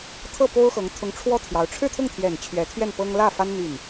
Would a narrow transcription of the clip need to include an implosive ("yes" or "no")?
no